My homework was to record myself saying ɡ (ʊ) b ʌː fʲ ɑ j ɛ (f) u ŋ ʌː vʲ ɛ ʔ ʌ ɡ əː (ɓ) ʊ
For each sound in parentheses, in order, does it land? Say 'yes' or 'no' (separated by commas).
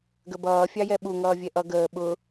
no, no, yes